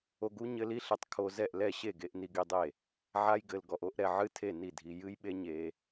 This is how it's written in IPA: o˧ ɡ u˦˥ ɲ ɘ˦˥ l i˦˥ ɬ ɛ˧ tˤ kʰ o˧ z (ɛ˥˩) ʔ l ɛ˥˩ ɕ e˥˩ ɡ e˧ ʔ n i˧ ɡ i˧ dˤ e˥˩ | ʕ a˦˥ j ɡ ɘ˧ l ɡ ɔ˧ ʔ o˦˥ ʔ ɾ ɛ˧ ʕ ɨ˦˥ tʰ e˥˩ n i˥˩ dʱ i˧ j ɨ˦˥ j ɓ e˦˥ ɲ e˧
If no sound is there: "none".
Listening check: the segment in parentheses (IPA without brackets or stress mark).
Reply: ɛ˥˩